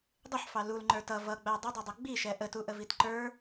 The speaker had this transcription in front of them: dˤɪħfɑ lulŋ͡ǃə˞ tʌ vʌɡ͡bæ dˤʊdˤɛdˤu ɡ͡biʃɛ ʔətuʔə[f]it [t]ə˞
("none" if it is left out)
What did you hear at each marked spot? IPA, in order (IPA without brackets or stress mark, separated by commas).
v, ǃ